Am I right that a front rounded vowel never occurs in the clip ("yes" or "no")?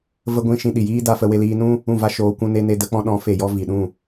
yes